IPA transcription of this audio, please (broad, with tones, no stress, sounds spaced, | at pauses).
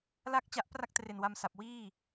l a˥˩ k̚ t͡ɕ a˦˥ ʔ p r a˥˩ k̚ t r e˨˩ n w a˧ m s a˨˩ p̚ w iː˥˩